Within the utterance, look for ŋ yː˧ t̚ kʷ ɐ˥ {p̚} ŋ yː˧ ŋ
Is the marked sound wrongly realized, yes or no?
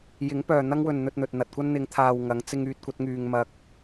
yes